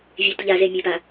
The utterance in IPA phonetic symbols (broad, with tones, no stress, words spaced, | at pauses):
vʲe˨tʎa˨ze˨ mʲe˨pa˨